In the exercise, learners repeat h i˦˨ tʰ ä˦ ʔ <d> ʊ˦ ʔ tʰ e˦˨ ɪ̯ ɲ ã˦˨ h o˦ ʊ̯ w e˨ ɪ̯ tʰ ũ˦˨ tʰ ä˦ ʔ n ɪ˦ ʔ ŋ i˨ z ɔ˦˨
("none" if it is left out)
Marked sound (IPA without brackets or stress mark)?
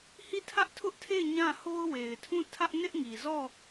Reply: tʰ